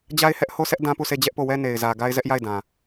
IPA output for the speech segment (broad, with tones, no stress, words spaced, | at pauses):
d͡ʑa˦ɪ̯hɛ˦ʔho˦sɛ˦ʔ dã˦pu˦˨sʰe˦˨ d͡ʑɛ˦ʔpo˦˨wɛ˦ ne˨ɪ̯zä˨ ɡa˦ɪ̯zɛ˦ʔ ja˦˨ɪ̯dã˨